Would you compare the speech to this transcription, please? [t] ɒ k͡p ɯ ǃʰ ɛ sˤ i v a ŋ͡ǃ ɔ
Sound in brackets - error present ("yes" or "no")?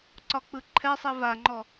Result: yes